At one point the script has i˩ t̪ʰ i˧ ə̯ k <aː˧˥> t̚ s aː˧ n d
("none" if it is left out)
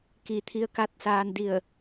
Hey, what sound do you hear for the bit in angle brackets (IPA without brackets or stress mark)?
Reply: a˧˥